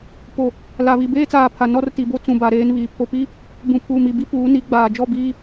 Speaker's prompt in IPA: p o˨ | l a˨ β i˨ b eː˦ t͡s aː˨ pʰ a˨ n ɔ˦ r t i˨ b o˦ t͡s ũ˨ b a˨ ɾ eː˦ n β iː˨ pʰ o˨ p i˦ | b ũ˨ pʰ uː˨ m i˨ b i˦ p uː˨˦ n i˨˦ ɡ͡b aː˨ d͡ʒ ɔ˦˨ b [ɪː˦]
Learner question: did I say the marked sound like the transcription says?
no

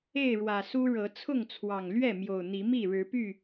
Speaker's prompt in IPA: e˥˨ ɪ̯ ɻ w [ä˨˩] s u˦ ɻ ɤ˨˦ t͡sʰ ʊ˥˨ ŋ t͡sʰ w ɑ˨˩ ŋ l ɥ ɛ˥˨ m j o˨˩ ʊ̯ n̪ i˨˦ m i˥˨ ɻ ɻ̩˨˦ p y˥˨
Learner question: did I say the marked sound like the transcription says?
yes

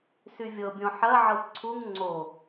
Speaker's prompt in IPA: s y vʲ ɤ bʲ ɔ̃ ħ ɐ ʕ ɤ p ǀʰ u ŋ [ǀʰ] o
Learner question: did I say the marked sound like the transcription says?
no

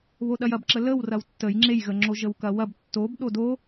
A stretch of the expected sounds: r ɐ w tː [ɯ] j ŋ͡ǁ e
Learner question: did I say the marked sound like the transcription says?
no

